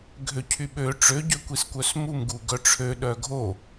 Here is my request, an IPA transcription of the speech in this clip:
ɡʱøcʰyɓø ʈ͡ʂø ɟøkʷiskʷœsmum ɡuɡœʈ͡ʂʰø ɗœɡʱo

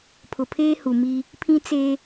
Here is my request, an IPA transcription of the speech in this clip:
pʰʊ˨pʰeː˦hu˨mi˦ | pʰĩ˦t͡se˦

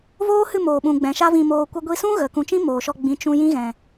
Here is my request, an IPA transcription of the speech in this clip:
voː˦hɨ˦˨ moː˨ɓũ˨ ɡ͡bɛ̃˨ʃa˦vĩ˧moː˧ kʷə˧ɡʷi˧sũ˦ ɣə˨ kũ˨t͡ʃĩ˦ moː˨ʃɔ˧ ɡ͡bĩ˨ t͡ʃũ˧ jĩ˦ɣɛ̃˨

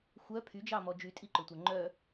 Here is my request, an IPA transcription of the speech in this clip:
xʷœ pʰyd͡ʒɑmɔ d͡ʒytʼiǃɵtʷœ ŋ͡ǃœ

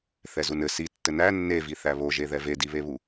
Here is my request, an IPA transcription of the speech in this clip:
θɛzunɘ si tːɘnæ nːevi θæβoʒeðɛ vediβeβu

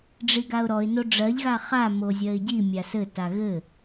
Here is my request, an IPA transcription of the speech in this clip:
ɖ͡ʐiɡaʊ̯ɾɔɪ̯ noɖ͡ʐɜʎ ɣaχa mozʲɜɪ̯ɟi mʲasɘ taɣɘ

